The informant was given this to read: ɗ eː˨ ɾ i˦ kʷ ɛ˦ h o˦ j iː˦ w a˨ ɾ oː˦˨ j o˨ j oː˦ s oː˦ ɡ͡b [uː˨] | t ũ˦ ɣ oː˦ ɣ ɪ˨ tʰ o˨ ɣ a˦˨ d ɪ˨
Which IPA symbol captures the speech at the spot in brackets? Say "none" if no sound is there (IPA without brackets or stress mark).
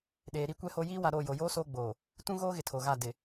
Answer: oː˨